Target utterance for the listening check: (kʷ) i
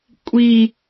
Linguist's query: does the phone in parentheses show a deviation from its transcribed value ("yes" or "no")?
yes